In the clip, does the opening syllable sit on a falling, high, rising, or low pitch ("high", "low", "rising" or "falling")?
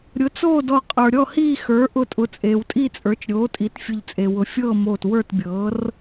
rising